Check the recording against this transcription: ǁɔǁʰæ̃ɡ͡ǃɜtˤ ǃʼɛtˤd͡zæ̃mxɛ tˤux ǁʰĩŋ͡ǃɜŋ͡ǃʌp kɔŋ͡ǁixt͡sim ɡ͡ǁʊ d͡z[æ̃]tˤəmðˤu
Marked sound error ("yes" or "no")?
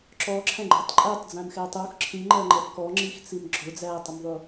yes